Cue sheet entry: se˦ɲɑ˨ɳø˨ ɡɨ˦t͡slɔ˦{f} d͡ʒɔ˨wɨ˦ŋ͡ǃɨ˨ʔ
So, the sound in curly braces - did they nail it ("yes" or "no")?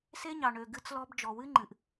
no